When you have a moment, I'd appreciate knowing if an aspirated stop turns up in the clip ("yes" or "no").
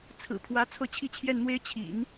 yes